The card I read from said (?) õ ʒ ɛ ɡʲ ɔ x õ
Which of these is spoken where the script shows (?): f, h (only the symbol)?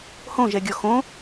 h